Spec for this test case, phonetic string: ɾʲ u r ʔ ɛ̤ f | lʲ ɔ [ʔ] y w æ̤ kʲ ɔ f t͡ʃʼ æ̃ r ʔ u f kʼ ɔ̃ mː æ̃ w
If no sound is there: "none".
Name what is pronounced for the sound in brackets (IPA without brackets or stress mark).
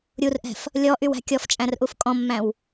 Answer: ʔ